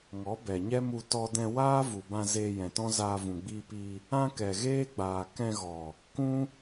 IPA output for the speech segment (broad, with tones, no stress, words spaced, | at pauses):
ŋɔ˨˦bɛ˨ɲɛ˦mu˧ tɔ˧dɛ̃˧ waː˦vu˨bã˧ zeː˧jɛ̃˨tɔ̃˦zaː˧ vũ˨ɡ͡biː˧pi˧ | ã˦ kɛ˨ɣeː˦ɡ͡baː˨ kɛ̃˧ɣɔ˨ | kũ˦